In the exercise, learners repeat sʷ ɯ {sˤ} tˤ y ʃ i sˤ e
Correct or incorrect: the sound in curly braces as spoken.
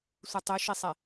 incorrect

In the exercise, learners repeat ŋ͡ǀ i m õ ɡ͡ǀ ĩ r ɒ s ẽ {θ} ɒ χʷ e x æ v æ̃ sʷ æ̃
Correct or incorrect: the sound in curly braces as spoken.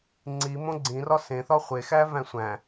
correct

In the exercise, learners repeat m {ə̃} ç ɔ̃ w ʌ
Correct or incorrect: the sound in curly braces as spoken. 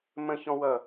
correct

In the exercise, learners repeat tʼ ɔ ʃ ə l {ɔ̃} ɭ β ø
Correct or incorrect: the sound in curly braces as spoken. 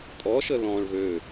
correct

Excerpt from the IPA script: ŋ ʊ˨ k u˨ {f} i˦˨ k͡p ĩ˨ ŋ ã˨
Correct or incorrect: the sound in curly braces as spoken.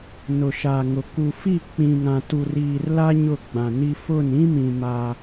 correct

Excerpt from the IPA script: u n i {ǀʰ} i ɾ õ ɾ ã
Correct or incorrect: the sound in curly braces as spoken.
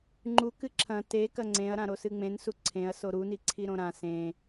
correct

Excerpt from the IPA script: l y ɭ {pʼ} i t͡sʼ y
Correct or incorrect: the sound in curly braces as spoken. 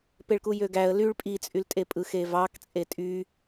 correct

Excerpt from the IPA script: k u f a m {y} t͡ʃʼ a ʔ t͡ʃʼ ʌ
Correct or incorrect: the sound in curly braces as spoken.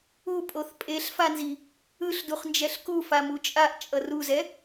incorrect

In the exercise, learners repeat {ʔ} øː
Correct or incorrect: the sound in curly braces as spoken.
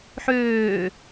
incorrect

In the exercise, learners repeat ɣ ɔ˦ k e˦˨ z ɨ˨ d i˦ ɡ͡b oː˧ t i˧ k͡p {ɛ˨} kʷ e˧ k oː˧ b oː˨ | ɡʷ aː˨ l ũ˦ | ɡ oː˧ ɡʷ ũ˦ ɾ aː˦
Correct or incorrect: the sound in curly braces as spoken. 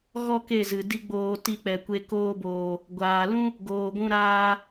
correct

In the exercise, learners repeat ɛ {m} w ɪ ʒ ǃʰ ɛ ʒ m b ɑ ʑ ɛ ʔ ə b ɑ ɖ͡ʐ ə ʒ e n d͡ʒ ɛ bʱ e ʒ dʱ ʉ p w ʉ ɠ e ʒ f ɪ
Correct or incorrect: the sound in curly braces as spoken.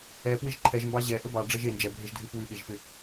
incorrect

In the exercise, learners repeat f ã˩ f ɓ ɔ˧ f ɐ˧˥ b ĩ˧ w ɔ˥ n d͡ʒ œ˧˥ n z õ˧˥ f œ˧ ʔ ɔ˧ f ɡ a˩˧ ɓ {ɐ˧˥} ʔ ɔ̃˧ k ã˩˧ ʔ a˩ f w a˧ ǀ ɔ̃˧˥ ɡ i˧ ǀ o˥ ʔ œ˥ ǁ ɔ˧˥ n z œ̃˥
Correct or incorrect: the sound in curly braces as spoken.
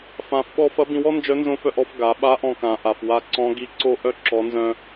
incorrect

